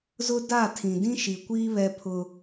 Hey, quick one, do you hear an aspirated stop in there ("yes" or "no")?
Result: yes